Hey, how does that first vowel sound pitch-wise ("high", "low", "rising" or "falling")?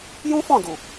high